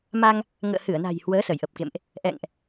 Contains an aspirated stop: no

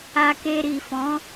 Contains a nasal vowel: yes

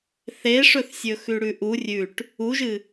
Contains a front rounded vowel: no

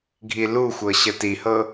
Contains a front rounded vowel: no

